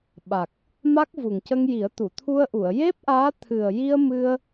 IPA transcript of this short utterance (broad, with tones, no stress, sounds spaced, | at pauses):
ɓ a˨˩ k̚ | m a˦˥ k̚ v u˨˩ ŋ c ə˧ ŋ j i˨˩˦ ə̯ t̪ u˨˩˨ t̪ʰ u˧ ə̯ ʔ u˨˩˨ ə̯ j e˦˥ p̚ ʔ aː˧˥ t̪ʰ ɨ˨˩ ə̯ j i˧ ə̯ m ɨ˧ ə̯